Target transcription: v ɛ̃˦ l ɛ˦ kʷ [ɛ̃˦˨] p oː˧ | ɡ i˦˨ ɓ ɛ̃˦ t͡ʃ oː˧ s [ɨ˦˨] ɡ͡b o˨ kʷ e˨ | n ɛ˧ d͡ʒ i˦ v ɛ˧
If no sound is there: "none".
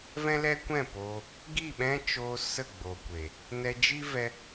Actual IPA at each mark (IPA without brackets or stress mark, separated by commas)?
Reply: ɛ̃˦˨, ə˦˨